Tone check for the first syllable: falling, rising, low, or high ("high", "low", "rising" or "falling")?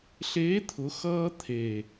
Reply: rising